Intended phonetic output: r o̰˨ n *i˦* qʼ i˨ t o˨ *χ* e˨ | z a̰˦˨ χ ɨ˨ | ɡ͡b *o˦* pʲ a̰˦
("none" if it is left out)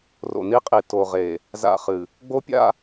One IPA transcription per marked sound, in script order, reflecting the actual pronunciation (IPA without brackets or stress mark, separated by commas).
i˦, ʁ, o˦